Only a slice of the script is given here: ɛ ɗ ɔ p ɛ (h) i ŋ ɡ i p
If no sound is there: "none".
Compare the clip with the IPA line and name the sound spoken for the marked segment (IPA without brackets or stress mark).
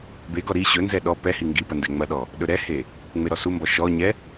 h